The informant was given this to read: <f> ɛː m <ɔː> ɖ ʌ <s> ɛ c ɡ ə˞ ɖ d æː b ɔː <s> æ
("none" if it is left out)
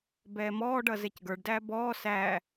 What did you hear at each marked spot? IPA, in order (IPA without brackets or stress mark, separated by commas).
b, ɔː, z, s